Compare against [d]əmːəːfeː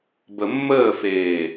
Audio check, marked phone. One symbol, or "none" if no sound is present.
b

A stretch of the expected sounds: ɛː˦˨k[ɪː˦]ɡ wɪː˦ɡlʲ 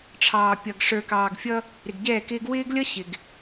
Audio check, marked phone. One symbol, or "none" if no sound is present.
ɪː˦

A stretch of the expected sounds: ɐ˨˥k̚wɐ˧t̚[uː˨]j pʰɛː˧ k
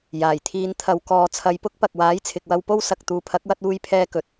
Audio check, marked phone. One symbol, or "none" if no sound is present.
uː˧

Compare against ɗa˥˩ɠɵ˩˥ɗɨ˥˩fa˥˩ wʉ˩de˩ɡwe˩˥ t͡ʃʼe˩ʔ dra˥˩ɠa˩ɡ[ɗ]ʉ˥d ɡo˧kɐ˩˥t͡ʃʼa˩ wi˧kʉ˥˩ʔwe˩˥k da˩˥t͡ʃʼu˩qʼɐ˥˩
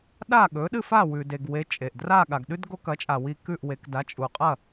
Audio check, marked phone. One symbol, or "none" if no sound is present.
ɗ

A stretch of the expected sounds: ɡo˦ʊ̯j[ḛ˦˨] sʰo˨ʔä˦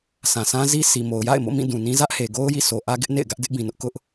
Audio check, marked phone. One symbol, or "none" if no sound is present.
ḭ˦˨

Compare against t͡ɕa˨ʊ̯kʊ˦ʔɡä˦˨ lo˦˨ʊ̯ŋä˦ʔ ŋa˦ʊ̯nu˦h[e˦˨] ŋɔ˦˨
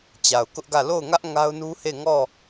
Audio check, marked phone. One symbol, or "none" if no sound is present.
e˦˨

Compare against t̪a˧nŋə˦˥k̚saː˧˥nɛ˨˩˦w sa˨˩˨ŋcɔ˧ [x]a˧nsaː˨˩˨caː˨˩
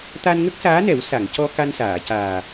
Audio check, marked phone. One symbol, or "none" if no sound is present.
k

